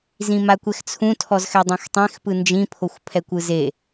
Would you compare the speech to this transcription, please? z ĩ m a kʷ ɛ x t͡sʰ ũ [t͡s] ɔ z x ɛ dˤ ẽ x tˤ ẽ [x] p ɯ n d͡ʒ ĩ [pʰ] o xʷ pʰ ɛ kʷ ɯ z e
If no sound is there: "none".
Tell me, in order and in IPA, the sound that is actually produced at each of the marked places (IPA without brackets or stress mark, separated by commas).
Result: tʰ, x, pʰ